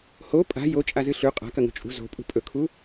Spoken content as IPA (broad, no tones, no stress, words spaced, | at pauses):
ho pʼa̤ jot͡ʃʼazɨ ɬʉ qʼa̤kɐŋo̤ t͡ʃʼṳ zo̤pʼṳ pʼɵkʰu